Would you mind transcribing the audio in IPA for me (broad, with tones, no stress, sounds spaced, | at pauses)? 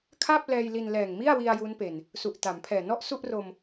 kʰ a˥˩ p̚ l ɛː˧ j l i˧ n l ɛː˨˩ ŋ m i˥˩ a̯ w i˧ a̯ j u˦˥ n p e˨˩ n | s u˨˩ ʔ t a˩˦ m pʰ ɛː˨˩ n ɔ˥˩ ʔ s u˥˩ ʔ r o˧ m